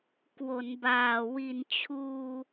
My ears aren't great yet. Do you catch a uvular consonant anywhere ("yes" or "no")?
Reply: no